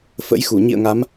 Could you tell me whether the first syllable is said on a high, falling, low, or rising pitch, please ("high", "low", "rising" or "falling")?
rising